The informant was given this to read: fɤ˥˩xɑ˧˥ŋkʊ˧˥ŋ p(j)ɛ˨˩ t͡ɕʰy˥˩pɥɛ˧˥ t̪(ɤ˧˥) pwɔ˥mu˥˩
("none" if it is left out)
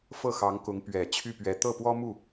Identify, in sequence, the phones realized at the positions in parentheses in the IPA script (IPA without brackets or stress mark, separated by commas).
ɥ, ɤ˥˩